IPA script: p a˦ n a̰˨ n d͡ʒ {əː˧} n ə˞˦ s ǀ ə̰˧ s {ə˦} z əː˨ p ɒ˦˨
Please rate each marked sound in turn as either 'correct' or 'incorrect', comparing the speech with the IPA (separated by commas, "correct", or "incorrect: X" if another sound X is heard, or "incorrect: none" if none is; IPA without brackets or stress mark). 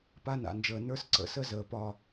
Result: incorrect: əː˨, correct